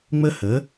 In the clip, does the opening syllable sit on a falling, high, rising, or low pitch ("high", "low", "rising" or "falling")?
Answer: high